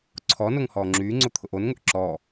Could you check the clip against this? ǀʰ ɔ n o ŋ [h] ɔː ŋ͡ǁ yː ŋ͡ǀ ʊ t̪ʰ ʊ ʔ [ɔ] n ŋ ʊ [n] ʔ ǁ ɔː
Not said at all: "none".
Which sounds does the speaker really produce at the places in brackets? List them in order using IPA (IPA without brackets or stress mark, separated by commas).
h, o, none